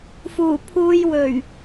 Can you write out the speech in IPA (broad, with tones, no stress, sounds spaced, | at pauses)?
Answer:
f uː˨˩ pʰ uː˧ j w ɵ˨˩ ɥ